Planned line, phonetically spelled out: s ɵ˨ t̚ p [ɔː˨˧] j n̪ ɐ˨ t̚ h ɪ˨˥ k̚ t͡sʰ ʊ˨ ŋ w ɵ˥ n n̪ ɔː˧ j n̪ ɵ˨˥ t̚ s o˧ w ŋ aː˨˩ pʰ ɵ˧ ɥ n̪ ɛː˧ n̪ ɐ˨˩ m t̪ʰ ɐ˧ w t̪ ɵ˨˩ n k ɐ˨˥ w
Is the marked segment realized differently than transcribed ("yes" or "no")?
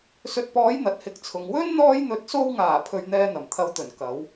no